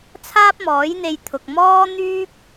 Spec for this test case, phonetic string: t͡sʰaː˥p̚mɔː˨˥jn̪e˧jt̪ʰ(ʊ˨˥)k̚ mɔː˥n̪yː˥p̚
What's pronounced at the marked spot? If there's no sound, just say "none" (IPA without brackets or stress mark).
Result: ʊ˨